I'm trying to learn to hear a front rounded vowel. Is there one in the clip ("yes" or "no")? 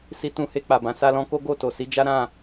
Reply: no